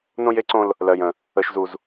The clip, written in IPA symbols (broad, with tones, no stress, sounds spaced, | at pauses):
n õ˦ j e˦ ǀ õ˦ l | l ɜ˦ j ə̃˦ | ə˦ ʃ z u˦ z